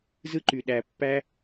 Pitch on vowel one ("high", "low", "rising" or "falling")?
high